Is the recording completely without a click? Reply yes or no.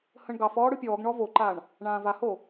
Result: no